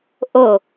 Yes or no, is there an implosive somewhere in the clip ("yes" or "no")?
no